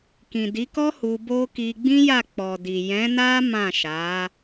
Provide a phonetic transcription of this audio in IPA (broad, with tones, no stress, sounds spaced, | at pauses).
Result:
k ĩ˨ d i˨˦ k ɔ˦ h u˧ b o˦ k i˧ ɡ͡b ĩ˦ j a˦˨ k͡p ɔ˨ d i˨ j ɛ̃˨˦ n a˦ m ã˦˨ ʃ a˨˦